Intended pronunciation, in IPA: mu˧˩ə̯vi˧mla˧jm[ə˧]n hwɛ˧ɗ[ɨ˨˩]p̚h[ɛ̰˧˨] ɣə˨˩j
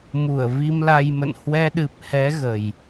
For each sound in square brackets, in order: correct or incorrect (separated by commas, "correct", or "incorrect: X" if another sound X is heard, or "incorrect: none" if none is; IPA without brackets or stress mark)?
incorrect: ə̰˧˨, correct, incorrect: ɛ˨˦